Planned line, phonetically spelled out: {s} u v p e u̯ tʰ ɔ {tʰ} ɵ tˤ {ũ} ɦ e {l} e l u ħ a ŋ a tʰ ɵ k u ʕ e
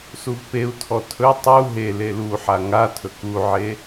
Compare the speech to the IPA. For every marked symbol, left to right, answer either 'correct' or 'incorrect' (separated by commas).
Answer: correct, correct, incorrect, correct